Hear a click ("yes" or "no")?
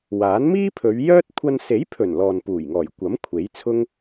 no